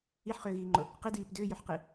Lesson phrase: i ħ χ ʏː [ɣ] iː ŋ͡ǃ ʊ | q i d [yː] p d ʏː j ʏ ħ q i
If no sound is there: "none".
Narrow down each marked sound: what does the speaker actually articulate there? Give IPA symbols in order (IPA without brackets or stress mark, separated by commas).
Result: ɣ, iː